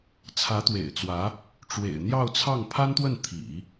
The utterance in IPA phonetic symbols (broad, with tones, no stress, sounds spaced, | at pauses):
t͡sʰ ä˧˥ t̪ w ḛ˨˩ ɪ̯ t͡s w ä˧˥ | ʈ͡ʂ w ḛ˨˩ ɪ̯ n̪ j ɑ˥˧ ʊ̯ t͡sʰ ɑ˥˩ ŋ pʰ a˥ n t̪ w ə˥˩ n t̪ʰ ḭ˨˩˦